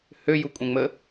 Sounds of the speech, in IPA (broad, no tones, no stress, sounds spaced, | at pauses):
h ø j u kʷʼ ɛ̃ ŋ͡m ə